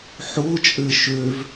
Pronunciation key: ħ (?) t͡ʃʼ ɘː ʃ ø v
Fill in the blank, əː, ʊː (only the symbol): ʊː